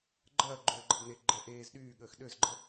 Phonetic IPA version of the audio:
ɡ͡ǃ ɐː ɡ͡ǃ øː ɡ͡ǃ ɐ b n e ɡ͡ǃ ɛ ʔ eː z ɗ yː ɠ əː x ɗ ø z ɡ͡ǃ ə

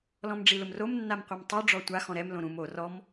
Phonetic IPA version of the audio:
l ɔ̃ m ɖ͡ʐ i l ʊ m r o m nː a m qʷ a m tˤ u ɖ͡ʐ ɔ tʷ a x ɔ̃ ɾ ɛ m l õ ɾ ũ m o r ɔ m

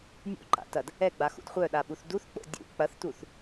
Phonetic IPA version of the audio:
nʲ ṵ ǃ a̰ t ɐ d | ɛ ɡ͡b a x ṵ d χʷ œ ɗ a ɓ u θ d u θ k͡p o̰ dʲ ṵ k͡p ɐ θ t u θ

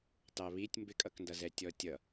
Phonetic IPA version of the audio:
t ɑ β i tʲ m b ɪ kʼ ʌ k n d ʌ z ɛ tʲ ɔ tʲ ʌ

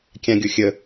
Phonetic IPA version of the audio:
kʲ ã ɡʲ o xʲ ə

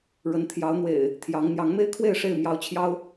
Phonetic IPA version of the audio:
ɻ ə˨˦ n t̪ʰ j ɑ˨˦ ʊ̯ n̪ w ḛ˨˩ ɪ̯ | t̪ʰ j ɑ˨˦ ŋ n̪ j ɑ˨˦ ŋ m e˦ ɪ̯ kʰ w e˥˨ ɪ̯ ʂ e˥˨ ɪ̯ m j ɑ˨˦ ʊ̯ t͡ɕʰ j ɑ˦ ʊ̯

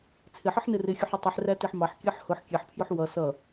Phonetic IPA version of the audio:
t͡sʰ ɪ ħ ə ħ n ɪ r ɪ xʲ u ħ ɪ tˤ i ħ r æ t i ħ m ɑ ħ kʲ ɜ ħ h ʊ ħ kʲ ɛ ħ pʰ j ʊ ħ w ʌ s ʌ

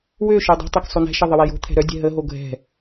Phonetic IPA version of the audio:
w ø ʃ œ dˤ o̤ tˤ ɛ k sˤ o n ɛ̤ ʃ ə ðˤ ə w ɛ j o̤ t̪ʰ ɛ̤ ɾ œ dʲ ɛ̤ ɦ ə ɦ o ɡʱ ɛ̤

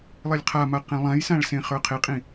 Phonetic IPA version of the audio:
lˠ e lʲ qʰ a m a q ẽ lˠ ã j s ã ɭ s ẽ χ ə˞ qʰ e qʼ ĩ

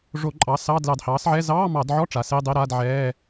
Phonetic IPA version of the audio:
ʐ o˧˩˧ ǃʼ ɑ˩˥ s ɑ˧˥˧ d l ɑ˧˩˧ d h ɑː˩˥ s ʕ ɛ˧˥˧ z ɑː˧˥˧ m ɑ˧˩˧ d ʕ ɔ˧˥˧ ʈ͡ʂ a˩˥ s e˧˥˧ dˤ e˧˥˧ ɾ a˧˥˧ d ʕ ɛː˧˥˧

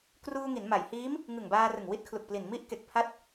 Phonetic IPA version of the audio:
k r uː˧ ŋ i˩˦ n m a˩˦ j h iː˦˥ m | ŋ ɯ˨˩ ŋ b aː˧ r ɯ˨˩ ŋ w i˦˥ t̚ kʰ l u˨˩ k̚ p l i˨˩ n m i˦˥ ʔ k e˨˩ k̚ pʰ a˦˥ t̚

